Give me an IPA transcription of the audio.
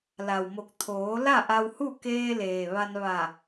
la˩wmo˧˩k̚ t̪ʰoː˩˧ la˥˨ʔa˧whu˥˨ keː˧leː˩ ʋa˧n ʋa˧˩

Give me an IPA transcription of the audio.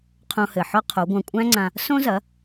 qʰõ˧hɘ˩ ħɔ˥qʰo˩˥ɡʷã˧ kʷʼæ̃˥ŋ͡ǀã˧ | sõ˥zɐ˩˥

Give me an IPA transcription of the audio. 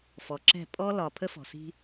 fɔ˨ǁɛ̤˦˨ pʼɔ˦ lɒ˨ pʰə˦fɔ̤˨si̤˦

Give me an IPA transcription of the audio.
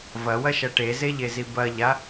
vɐwɐʃɐ ʈezeʎezi bɐʎa

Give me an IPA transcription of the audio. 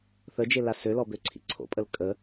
θəd͡ʒela sølɔbøǀʰḭ ǀʰo̰pʼəl kʼə

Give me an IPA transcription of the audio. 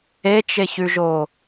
et͡ʃeçʉʒo

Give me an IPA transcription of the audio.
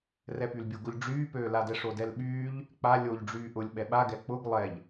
rɛpylbʲoɡʊʎ ɖ͡ʐyːpøːladɛ ʂodɛlɓyːʎ | k͡pa lʲoʎ ɖ͡ʐyːʔʊlʲ ɓɛɓaɡɛ k͡pʊɡ lˠɛʎ

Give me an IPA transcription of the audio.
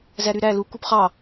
zæɾyɾæ lu kupχɑ

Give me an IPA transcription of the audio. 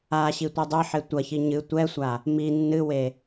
aɕi tʷedˤɘħe tʷɐçi ɲɨ tʷɛsʷa | mi nːɨwe

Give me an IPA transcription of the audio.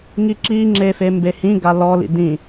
ŋiǁiŋ͡ǁefe mbehĩ ɡalɔlḭ dĩ

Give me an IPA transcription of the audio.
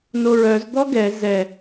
noɹœz d̪ɔɡɛ zɛ

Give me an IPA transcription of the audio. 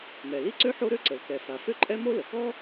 mɛ˩li˥ǀø˥ ħo˥ɾø˥ǀə˩l kɛ˩fa˩ fø˥ǃʼɛ˥mo˥ lə˩kɔ˥

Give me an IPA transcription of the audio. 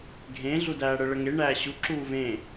ɡʱẽ ɮudæːɽə ɭəŋe ɳæːɕu ǁuːvẽ

